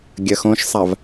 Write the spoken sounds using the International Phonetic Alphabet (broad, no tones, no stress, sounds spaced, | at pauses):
ɡʲ ɐ x õ ʃ sˤ a v